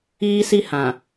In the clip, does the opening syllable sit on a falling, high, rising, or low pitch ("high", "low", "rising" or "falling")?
high